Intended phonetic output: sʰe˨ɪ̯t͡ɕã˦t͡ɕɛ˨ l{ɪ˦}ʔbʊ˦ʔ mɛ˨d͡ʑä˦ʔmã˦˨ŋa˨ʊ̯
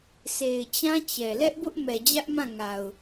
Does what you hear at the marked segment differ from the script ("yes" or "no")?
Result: yes